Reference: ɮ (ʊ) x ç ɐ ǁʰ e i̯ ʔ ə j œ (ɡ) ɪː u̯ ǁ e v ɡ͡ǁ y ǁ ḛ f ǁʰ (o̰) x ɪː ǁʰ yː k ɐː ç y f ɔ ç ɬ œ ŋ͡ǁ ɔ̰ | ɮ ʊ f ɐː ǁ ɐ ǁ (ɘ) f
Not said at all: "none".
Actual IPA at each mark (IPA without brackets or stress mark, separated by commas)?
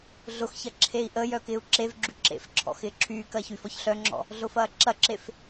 ʊ, k, ɔ̰, e